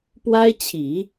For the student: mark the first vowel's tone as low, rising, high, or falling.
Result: high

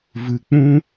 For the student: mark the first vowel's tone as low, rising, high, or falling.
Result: low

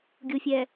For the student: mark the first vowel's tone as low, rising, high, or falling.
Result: low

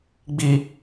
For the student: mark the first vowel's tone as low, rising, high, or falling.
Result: high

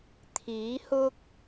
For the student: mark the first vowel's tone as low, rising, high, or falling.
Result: rising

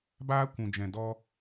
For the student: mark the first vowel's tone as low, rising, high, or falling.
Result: high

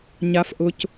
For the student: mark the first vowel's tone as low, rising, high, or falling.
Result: low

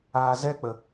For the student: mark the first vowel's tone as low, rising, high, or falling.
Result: low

